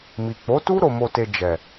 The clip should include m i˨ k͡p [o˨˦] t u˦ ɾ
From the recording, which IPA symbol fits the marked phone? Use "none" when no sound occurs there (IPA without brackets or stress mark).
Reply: o˨˦